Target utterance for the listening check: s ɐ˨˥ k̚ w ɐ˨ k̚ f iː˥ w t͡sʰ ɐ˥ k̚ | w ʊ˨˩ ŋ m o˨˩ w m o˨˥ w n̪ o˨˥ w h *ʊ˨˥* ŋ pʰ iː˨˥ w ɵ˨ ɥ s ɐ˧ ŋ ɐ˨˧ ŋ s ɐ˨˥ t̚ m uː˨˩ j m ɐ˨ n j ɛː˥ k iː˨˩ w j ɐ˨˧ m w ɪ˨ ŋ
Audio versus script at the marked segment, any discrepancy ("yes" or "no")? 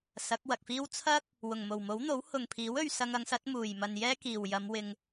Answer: yes